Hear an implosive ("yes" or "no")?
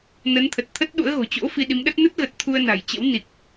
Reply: yes